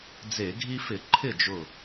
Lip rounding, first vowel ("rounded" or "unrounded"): unrounded